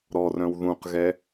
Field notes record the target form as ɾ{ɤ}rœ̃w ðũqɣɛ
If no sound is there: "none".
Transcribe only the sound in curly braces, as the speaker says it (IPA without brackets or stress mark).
ɔ